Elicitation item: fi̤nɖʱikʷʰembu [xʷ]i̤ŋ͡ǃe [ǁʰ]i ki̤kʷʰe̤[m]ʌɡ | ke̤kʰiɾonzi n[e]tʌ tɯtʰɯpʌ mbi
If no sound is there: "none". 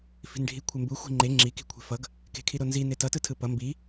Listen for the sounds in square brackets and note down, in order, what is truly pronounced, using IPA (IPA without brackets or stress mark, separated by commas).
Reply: xʷ, ŋ͡ǁ, f, e